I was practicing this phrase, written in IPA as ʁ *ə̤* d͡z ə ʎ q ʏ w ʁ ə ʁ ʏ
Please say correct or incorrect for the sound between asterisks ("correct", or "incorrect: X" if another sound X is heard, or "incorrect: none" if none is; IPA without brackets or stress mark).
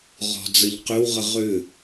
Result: incorrect: ɔ̤